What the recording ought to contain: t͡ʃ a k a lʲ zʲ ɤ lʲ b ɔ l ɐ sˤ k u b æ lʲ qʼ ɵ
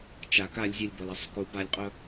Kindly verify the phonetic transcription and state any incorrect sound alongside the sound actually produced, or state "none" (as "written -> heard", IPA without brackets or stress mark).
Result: æ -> a